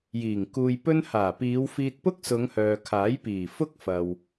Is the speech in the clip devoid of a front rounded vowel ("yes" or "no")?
no